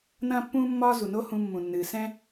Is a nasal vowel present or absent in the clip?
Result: present